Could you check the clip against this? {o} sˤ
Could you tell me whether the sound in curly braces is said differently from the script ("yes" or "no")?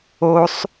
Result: no